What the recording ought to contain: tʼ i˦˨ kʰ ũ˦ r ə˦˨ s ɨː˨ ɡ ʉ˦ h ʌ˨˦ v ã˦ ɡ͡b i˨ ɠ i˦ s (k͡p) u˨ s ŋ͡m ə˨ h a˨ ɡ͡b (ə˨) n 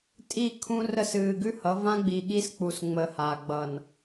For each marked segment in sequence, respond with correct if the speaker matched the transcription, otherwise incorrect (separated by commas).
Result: correct, incorrect